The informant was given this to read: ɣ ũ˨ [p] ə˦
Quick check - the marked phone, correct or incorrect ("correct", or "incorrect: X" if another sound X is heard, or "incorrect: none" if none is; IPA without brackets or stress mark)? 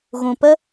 correct